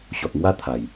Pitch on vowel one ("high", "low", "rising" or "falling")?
low